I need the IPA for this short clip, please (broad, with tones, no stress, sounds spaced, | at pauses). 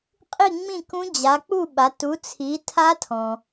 qʼ i˥˧ ŋ͡m ĩ˥˧ k ũ˦˥ d͡ʑ a˨˦ k͡p u˥˧ ɓ a˨˦ t u˨˦ t͡sʰ i˨˦ tʰ a˦˥ tʰ ɔ̃˨